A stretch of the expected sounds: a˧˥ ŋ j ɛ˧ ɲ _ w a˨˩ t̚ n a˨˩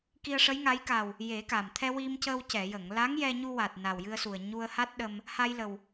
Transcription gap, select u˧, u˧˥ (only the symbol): u˧